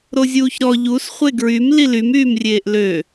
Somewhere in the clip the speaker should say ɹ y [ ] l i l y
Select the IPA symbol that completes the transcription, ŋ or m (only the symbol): m